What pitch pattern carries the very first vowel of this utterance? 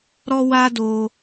low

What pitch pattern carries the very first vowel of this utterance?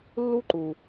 high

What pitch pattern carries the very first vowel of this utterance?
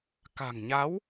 low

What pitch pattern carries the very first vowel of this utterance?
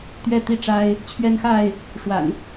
falling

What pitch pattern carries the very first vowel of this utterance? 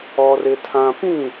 high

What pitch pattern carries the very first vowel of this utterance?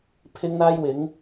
high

